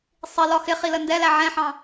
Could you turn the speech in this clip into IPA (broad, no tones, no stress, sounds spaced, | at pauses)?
sˤ i l ɒ x ɪ χ i l ə n d ɛ l æ ʕ ɛ̃ ħ ɑ̃